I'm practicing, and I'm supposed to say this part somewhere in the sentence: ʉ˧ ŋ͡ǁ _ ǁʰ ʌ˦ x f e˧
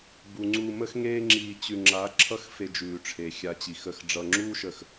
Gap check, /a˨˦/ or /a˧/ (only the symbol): a˨˦